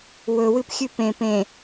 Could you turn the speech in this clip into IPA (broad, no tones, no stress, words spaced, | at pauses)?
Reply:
wɵwɨp xʲʉpẽ pẽ